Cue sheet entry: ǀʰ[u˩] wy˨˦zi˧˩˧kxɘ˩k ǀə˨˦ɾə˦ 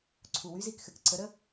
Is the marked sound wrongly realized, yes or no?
no